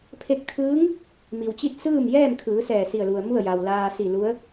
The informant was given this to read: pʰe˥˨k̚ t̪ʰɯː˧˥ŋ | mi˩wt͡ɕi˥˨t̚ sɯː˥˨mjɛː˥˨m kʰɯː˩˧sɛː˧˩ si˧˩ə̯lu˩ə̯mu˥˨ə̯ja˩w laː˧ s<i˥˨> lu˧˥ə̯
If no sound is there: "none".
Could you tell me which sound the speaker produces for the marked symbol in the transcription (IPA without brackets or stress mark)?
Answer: i˧˩